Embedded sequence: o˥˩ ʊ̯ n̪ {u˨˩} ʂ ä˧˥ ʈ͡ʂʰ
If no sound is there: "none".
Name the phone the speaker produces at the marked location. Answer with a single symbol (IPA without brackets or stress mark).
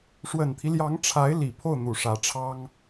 u˨˩